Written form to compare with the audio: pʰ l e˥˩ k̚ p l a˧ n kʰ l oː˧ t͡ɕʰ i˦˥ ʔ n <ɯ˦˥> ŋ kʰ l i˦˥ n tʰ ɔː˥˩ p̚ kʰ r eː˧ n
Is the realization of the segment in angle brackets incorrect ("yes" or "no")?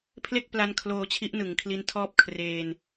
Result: yes